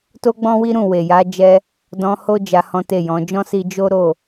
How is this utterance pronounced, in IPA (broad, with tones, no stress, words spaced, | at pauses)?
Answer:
to˦ɡ͡bɔ̃˦wi˦ɾũ˦˨ we˨ja˨˦ d͡ʒɛ˦ | dɔ̃˧ho˦ d͡ʒa˧hɔ̃˦te˦˨jɔ̃˨˦ d͡ʒɔ̃˦si˧ d͡ʒo˦ɾo˦˨